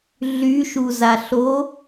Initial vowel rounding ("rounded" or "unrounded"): rounded